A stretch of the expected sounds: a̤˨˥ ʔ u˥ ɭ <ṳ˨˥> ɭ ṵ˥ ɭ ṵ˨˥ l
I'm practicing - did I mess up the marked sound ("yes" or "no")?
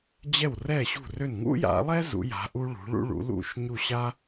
no